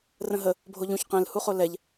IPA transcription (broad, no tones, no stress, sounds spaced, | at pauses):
r ə̃ ɦ ə | bʱ o ʎ ũ ç q ɛ̃ l h u χ o l ɛ ʎ